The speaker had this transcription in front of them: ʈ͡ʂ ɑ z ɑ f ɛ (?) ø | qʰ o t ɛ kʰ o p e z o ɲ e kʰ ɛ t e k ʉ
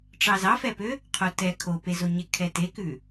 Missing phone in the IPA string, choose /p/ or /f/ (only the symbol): p